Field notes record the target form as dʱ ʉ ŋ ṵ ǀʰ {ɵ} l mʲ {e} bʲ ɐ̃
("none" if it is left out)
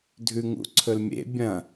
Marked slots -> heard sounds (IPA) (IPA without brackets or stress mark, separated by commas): ɵ, ḛ